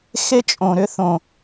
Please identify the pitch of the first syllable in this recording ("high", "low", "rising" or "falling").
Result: high